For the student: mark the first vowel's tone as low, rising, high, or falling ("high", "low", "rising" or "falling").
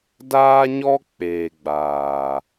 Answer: high